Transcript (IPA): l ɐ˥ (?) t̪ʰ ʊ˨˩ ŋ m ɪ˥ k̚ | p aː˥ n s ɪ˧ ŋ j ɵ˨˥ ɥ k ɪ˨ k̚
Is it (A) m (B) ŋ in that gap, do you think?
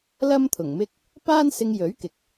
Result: A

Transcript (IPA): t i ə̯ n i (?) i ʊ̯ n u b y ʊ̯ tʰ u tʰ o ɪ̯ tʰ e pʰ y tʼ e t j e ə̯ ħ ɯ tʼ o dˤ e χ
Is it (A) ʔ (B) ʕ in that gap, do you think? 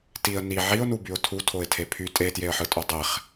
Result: B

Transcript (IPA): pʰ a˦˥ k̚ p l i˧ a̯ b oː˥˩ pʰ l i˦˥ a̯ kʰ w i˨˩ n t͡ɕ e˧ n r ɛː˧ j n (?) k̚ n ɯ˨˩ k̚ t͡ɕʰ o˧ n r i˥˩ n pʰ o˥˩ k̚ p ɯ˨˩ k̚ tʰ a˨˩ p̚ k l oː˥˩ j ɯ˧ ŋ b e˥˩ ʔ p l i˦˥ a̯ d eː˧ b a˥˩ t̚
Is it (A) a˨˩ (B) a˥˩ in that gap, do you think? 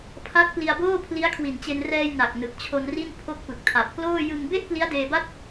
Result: A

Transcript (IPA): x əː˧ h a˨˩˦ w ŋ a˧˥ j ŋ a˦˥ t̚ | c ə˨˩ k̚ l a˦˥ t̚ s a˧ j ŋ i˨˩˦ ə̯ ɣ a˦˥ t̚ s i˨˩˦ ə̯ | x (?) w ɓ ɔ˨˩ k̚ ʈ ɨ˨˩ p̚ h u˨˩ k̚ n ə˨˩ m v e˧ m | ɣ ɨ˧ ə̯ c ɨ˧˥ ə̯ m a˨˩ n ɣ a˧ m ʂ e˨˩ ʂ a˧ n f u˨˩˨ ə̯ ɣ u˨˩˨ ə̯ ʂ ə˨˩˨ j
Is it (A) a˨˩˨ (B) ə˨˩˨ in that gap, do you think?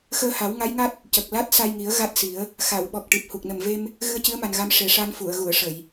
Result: A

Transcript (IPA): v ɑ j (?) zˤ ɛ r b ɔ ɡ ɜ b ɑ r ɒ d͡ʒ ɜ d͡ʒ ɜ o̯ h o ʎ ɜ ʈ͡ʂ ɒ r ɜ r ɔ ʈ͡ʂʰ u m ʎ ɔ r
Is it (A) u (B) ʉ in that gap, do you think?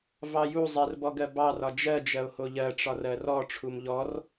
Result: A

